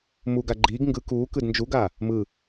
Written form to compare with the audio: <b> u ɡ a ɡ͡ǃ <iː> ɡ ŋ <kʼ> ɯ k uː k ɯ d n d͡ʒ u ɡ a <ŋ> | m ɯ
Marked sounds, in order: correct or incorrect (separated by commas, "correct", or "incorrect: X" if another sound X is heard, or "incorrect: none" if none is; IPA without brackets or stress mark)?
incorrect: m, correct, incorrect: ɡ, incorrect: none